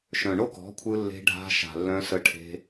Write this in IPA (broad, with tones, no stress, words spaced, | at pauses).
ʃœ̃˨ɳo˦kɔ̤˨˦kʷʰɯ˧ lːe̤˧ɖʱa̤˧ ʃa̤˨lːœ̃˧sə˧ʈʰe̤˧